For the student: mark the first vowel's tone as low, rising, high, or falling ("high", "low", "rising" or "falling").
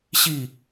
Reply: falling